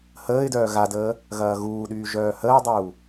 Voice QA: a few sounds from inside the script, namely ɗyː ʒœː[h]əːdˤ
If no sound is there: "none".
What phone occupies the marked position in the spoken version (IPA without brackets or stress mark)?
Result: h